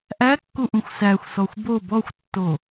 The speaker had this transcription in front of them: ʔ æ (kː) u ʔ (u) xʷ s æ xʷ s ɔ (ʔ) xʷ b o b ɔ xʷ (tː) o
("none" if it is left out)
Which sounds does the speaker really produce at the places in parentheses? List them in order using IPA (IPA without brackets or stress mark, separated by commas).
kː, ũ, none, tː